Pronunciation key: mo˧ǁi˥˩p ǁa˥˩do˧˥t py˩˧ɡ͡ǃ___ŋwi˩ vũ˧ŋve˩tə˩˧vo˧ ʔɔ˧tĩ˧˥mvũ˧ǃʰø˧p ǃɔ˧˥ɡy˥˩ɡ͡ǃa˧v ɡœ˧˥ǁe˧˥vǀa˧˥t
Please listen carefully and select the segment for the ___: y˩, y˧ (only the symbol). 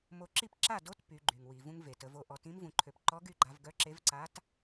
y˩